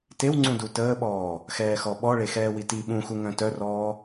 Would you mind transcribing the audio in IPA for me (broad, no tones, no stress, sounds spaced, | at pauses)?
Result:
t e w ŋ͡ǀ ũ d u t əː ɓ ɔː | x ɛː x ɔ ɓ ɔ ɭ e x ɛː w i t i ɓ ũ x u ŋ œ̃ t œ r ɔː